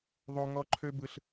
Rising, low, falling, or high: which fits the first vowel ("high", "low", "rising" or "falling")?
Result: high